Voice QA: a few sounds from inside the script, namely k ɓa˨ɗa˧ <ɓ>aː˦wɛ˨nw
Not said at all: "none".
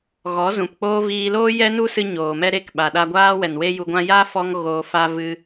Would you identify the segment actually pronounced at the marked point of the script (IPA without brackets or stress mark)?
ɡʷ